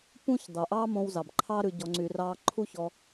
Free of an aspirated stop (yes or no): no